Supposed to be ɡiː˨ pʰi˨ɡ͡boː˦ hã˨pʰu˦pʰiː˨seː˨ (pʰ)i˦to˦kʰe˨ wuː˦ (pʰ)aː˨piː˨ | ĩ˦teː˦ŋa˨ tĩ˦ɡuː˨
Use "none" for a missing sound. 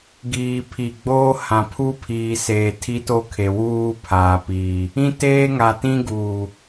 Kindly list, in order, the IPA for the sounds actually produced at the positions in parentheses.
tʰ, pʰ

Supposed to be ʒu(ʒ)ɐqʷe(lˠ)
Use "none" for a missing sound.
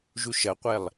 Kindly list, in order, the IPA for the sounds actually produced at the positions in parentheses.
ʃ, lˠ

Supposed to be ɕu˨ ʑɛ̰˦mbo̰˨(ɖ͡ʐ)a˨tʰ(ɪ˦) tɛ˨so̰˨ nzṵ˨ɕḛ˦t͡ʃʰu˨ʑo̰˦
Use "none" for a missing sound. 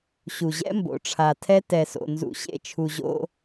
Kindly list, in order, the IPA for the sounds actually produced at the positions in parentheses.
ʈ͡ʂʰ, ɛ˦

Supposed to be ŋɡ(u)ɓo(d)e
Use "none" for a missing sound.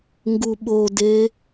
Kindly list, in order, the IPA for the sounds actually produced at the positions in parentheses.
u, d

